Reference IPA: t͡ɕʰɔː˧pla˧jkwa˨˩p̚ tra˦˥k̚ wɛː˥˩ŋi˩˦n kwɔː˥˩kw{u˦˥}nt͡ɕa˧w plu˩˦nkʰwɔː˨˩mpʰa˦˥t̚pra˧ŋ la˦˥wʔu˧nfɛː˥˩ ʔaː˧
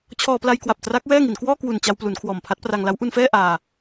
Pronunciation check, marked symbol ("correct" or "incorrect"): incorrect